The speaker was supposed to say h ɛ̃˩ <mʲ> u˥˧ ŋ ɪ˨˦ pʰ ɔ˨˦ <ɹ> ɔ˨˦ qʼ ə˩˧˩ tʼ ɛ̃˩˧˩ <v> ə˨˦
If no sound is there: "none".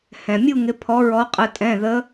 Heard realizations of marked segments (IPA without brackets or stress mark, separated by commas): mʲ, ɹ, ð